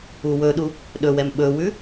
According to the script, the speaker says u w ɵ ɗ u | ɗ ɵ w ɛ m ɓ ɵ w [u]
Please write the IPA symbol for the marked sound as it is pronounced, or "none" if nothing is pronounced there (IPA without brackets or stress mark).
ʉ